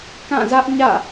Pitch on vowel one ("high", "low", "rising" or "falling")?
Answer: falling